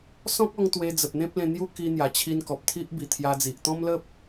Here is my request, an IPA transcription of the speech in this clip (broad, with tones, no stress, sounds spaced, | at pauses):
s ɔ̃˦ k̚ ɔ˧ ŋ t̪ w e˧ d͡z ə˨ p̚ n̪ ẽ˦ p̚ l ẽ˧ n̪ j u˦ k i˧ n̪ j a˨˩ t͡ɕʰ i˧ n k ɔ˨ p̚ t̪ʰ i˦ ʔ b i˨˩ t̪ʰ j a˧ d͡z i˨ ʔ t̪ ɔ̃˦ m l ə˦ p̚